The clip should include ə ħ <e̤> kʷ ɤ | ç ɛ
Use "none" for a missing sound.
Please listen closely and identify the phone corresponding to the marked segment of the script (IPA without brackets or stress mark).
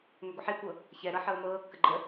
e